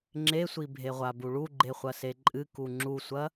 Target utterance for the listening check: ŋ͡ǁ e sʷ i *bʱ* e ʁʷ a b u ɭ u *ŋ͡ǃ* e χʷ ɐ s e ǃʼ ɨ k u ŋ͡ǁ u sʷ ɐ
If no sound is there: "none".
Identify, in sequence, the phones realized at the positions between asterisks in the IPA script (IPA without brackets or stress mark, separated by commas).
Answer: bʱ, ɡ͡ǃ